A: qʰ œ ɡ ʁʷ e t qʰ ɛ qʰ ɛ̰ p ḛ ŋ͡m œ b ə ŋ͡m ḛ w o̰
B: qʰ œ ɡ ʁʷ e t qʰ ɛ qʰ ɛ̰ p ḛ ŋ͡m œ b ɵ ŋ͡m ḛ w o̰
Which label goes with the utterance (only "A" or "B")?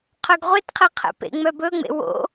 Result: B